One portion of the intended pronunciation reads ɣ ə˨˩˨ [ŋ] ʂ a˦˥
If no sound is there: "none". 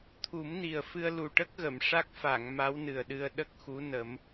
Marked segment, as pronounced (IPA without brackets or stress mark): m